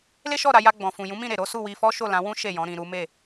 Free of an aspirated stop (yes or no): yes